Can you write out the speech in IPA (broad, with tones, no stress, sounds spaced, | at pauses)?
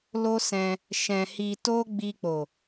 l o˦ s ɛ̃˧ | ʃ ɛ̃˧ h i˧ t o˦ ɡ͡b i˧ k͡p o˨